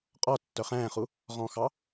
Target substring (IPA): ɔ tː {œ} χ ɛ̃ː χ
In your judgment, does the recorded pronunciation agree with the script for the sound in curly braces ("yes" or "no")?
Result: yes